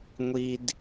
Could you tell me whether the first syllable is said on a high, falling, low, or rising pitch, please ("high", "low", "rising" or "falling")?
low